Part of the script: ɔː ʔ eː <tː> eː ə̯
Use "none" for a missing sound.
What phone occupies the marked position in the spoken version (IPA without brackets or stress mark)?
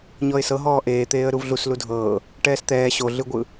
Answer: t̪